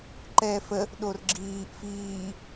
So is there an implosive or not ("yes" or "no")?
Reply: yes